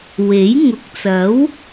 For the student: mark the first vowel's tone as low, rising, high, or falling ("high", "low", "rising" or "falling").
rising